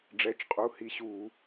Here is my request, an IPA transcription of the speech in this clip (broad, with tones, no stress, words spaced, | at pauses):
ɖ͡ʐɛ˩˧˩t͡ʃqʼu˩˧˩ hi˧˥ɕu˧˩˧